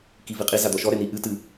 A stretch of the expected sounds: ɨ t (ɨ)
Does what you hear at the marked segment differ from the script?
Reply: no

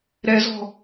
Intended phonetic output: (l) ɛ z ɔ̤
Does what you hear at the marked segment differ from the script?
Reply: yes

